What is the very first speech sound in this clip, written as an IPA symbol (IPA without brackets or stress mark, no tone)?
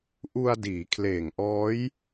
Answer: ʔ